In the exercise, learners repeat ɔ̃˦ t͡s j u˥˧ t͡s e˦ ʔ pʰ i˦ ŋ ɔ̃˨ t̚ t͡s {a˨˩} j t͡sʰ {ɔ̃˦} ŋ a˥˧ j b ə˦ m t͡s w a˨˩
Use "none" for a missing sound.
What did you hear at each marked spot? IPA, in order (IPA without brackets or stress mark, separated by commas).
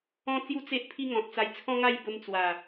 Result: a˧, ɔ̃˦